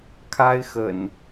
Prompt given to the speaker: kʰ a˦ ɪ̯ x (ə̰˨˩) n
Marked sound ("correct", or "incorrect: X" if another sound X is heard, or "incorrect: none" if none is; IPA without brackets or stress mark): correct